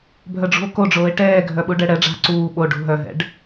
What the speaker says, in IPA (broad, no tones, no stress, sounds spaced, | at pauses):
bʱ œ ɖ͡ʐ ṳ o̯ k o ɖ͡ʐ oː e̯ ʈ ɛː ɡʱ œ ɓ u ɖ ɛ ɽ ɛ ɖ͡ʐ a̤ ǀ uː ɓ o ɖ ṳ ɦ œ ɦ ɛ̰ ɖ